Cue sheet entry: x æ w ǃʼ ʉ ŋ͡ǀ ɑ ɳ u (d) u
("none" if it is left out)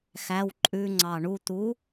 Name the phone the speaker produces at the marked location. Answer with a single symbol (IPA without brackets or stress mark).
t̪